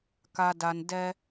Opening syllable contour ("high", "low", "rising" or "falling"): low